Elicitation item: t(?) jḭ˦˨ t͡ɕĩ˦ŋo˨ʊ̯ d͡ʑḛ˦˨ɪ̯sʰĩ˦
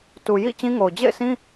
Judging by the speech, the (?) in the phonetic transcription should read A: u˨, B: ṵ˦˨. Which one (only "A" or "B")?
A